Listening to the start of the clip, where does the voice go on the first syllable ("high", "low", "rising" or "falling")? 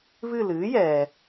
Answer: falling